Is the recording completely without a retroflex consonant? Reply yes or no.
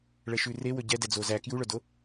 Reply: no